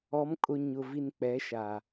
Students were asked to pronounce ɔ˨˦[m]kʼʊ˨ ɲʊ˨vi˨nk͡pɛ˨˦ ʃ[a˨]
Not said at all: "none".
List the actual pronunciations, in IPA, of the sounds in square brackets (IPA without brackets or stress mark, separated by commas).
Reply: m, a˨